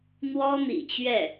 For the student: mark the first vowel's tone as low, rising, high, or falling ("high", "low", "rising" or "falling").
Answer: high